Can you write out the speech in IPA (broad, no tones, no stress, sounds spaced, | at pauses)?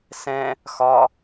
s ɛ̃ | x ɒ